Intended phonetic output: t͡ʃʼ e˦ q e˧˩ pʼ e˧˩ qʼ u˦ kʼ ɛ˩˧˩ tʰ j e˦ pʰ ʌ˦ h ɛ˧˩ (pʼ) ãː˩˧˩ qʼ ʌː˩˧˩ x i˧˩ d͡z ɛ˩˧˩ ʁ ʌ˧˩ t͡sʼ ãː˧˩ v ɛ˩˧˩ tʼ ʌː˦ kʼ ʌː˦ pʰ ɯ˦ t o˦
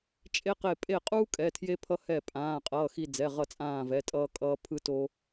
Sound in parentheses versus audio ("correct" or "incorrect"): correct